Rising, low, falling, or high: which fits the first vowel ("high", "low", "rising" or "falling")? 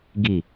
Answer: low